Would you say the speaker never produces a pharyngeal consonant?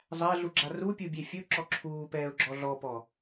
yes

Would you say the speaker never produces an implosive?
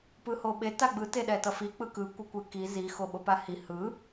no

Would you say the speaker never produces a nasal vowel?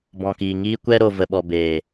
no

